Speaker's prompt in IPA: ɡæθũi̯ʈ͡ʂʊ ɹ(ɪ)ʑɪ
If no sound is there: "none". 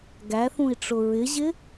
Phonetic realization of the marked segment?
ɪ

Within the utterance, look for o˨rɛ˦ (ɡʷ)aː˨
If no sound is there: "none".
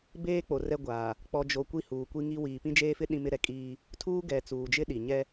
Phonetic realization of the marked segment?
ɡʷ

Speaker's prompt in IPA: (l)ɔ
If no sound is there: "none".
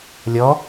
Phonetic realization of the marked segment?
lʲ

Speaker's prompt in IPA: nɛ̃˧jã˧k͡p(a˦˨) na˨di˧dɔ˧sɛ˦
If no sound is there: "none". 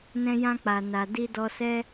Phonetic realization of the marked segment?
a˨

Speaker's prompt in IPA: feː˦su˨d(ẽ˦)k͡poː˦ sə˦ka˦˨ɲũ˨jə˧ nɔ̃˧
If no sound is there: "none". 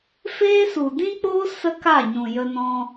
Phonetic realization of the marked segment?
ĩ˦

